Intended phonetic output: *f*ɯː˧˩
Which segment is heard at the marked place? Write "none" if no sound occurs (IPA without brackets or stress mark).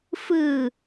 f